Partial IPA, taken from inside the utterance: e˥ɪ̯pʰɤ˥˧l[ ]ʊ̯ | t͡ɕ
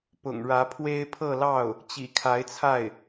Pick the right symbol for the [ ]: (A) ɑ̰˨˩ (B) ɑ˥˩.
B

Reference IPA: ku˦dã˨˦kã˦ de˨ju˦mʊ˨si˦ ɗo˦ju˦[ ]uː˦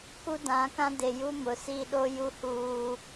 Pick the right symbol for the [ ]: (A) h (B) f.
A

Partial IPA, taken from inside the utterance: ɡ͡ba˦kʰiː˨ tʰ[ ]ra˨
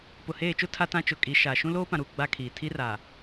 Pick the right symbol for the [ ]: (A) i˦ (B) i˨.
A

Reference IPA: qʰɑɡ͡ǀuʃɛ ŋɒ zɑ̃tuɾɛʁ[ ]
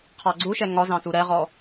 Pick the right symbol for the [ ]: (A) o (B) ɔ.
B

